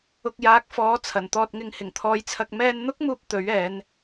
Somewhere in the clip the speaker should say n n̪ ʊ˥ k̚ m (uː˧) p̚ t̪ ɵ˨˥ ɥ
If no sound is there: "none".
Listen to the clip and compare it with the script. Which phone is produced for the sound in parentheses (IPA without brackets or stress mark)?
uː˧